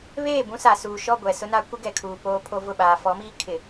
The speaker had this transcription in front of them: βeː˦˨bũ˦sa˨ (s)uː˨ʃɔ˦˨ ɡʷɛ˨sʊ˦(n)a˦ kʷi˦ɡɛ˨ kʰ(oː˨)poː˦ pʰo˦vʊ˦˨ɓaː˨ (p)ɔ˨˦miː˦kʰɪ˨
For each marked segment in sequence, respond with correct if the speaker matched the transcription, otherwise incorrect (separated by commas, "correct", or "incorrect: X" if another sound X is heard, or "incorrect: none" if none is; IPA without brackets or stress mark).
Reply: correct, correct, incorrect: uː˨, incorrect: f